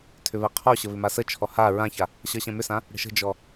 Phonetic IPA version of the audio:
tʰʏβɛqʰɔɕə βʏmasət͡ʃʰɔ ha ɹãça | ɕʌɕɛ̃mʏsã | ɽə̤ʃə̤d͡ʒɔ

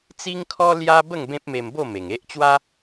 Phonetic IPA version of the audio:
t͡si˦ŋkʰɔ˦ lja˦ bə˥˧ŋ bẽ˦p̚me˧mbo˥˧ me˨˩ŋe˦ʔt͡ɕwa˦

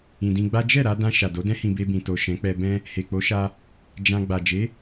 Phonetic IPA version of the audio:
ĩ˨dĩ˧ɡ͡ba˦ d͡ʒɛ˦˨ɾa˧dã˧ ʃa˨do˨˦dɛ̃˦hĩ˧ be˧bĩ˨ to˨ʃɛ̃˨˦k͡pɛ˧bɛ̃˦ | he˨k͡po˨˦ʃa˧ | d͡ʒã˧ ɡ͡ba˨d͡ʒe˨˦

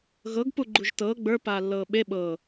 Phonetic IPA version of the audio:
ɣɤɡ puɡ͡ǃuʒtɤː ɡ͡bə˞ paːlːɤːɓe ɓɤ

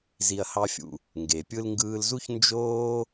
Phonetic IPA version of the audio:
zi˧ɐ̯hɑ˦fʲṵ˧ | ŋɡe˨ pʲɯ˧lŋɡɯː˧lzu˦ç nd͡ʒoː˦

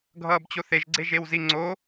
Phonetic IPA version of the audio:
ɡʱʌːbt͡ɕoθeʒ ɡ͡ǀeʒewziŋ͡ǀo

